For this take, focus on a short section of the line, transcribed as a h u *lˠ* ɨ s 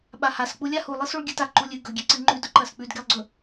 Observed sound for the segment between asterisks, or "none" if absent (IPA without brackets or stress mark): lˠ